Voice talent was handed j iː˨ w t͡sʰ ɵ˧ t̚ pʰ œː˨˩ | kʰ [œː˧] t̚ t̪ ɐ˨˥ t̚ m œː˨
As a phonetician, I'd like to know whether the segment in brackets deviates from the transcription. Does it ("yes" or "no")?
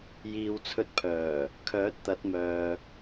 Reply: yes